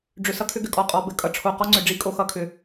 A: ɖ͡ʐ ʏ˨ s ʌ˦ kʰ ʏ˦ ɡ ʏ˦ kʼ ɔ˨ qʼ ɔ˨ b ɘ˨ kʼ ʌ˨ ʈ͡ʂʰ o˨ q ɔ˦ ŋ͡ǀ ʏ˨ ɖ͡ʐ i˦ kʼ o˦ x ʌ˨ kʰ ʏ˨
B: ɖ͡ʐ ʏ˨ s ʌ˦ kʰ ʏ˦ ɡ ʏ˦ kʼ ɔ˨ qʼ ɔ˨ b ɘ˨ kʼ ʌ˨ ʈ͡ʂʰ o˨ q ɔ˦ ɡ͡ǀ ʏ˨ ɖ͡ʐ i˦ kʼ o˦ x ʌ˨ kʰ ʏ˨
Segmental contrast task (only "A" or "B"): A